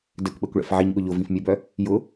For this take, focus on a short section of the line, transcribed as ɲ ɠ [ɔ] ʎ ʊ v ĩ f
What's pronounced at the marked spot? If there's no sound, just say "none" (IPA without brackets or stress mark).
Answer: ʊ